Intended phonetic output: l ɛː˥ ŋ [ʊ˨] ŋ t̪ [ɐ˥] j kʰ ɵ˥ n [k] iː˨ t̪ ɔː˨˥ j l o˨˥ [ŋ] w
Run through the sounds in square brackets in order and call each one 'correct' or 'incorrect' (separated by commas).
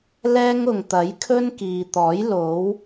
correct, incorrect, correct, incorrect